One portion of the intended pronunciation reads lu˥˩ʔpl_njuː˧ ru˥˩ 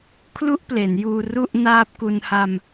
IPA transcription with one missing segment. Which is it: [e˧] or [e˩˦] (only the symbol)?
e˩˦